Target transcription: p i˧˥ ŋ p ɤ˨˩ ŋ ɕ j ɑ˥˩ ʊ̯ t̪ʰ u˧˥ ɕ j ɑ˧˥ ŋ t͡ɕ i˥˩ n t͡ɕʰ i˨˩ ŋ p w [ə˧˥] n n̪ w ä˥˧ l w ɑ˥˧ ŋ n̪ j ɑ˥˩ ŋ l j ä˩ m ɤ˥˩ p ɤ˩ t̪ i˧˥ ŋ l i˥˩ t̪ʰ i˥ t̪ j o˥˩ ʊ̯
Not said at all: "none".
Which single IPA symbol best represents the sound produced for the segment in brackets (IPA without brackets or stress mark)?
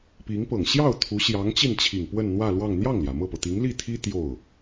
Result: ə˥˧